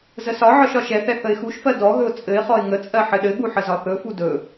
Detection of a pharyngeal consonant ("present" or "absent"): present